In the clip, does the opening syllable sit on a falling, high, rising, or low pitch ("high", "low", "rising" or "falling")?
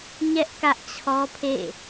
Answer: high